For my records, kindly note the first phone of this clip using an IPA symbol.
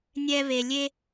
nʲ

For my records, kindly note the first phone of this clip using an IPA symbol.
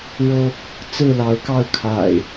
ɻ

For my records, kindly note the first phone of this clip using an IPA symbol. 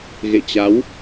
ɣ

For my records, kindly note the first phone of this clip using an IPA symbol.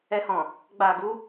ɛ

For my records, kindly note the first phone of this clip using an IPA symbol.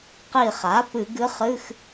q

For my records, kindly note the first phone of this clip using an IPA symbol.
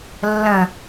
lː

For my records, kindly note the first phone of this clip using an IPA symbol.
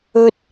ɵ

